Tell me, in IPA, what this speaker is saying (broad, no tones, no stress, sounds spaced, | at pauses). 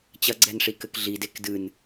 t͡ɕ ɐ ɡ͡ǀ ɛ n ʂ i k ɘ k ɮ i d e k d ɨ n